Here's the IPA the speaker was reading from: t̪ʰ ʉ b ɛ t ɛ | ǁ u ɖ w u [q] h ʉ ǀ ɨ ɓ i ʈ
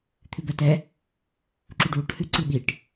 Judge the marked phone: incorrect: ʈ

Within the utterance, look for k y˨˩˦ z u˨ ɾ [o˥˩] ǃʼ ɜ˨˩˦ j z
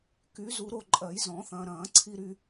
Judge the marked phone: correct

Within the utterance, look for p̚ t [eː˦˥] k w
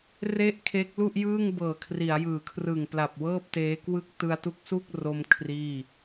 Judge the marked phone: correct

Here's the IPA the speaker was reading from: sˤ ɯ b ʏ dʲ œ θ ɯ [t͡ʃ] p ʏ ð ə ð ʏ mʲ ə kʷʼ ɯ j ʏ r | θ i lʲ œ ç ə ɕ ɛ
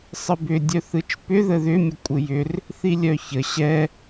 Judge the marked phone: correct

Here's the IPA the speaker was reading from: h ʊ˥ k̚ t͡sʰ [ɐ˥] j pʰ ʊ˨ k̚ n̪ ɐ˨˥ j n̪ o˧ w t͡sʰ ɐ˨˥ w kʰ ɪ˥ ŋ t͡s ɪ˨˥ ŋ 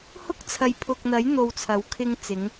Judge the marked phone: incorrect: ɐ˨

